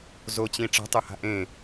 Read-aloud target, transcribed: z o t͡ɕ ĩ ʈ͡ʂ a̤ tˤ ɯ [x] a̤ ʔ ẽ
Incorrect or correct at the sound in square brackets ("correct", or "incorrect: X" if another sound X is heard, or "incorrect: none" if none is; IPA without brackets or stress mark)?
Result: incorrect: h